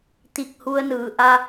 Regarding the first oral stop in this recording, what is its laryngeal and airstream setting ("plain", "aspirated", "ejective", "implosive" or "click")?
plain